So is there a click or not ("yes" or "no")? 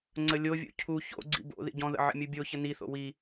yes